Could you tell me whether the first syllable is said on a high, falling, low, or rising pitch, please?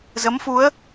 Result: rising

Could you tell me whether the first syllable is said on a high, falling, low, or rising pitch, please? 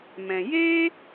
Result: low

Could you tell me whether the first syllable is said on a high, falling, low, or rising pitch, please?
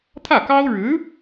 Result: falling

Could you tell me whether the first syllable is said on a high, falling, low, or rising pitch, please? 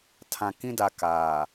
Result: low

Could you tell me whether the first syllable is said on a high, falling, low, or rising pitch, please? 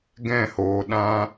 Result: falling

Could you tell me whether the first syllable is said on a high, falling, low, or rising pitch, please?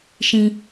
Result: high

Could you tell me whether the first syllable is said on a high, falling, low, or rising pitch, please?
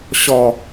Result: low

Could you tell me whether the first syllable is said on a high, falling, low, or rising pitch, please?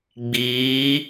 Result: rising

